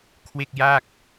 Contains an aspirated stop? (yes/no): yes